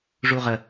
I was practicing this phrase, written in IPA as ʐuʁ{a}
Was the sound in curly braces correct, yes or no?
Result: no